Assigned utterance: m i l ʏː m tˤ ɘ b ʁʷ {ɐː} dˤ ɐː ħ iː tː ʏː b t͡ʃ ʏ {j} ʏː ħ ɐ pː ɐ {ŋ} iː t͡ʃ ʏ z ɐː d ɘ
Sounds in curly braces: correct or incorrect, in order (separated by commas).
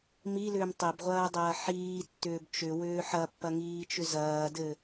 correct, incorrect, correct